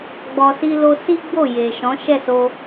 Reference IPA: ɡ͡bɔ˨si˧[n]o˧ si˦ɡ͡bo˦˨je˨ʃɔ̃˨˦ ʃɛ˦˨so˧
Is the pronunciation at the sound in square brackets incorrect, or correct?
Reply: incorrect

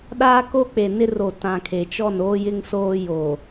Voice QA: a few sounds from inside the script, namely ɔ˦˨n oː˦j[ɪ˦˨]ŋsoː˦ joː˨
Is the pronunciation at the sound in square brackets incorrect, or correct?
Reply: incorrect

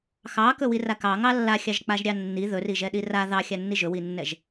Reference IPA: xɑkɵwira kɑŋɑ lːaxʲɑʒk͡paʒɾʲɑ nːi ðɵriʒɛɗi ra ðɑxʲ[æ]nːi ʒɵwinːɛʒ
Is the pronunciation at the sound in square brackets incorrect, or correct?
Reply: incorrect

